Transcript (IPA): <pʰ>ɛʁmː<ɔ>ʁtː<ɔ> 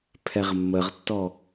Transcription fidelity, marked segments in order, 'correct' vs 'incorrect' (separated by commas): correct, incorrect, correct